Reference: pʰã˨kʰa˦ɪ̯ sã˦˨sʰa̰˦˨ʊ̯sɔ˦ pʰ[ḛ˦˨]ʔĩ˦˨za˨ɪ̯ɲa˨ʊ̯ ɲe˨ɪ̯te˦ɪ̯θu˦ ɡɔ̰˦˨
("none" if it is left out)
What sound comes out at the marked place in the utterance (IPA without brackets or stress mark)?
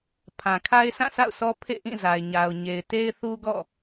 ḛ˦˨